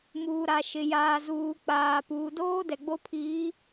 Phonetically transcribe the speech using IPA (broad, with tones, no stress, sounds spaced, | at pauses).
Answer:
m uː˨ ɾ a˨ ʃ ɪ˨ j aː˨ z uː˨ k͡p aː˨ p uː˨ d oː˦ d ɛ˨ ɡ͡b o˦ pʰ iː˨˦